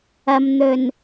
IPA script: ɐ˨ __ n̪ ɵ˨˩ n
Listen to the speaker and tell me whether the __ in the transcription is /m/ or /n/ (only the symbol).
m